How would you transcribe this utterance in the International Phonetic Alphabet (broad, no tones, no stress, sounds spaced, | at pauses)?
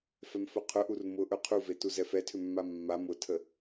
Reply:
f ɛ m f ɵ qʰ ʊ ʔ u r m ʊ ʔ ɵ qʰ u v e t u z ɛ f ɛ tʰ ʏ mː a mː a m ʊ tʰ ə